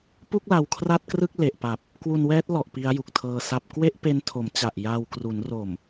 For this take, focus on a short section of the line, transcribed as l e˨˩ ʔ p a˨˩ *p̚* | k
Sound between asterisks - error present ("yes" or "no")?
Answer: no